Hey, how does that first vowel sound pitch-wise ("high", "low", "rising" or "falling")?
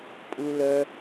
low